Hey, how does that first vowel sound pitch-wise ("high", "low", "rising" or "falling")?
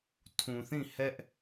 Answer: low